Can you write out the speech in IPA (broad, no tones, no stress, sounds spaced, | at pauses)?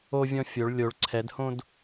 o vʲ ɔ̃ fʲ o ɭ lʲ o ɭ ǀʰ ɛ d h õ d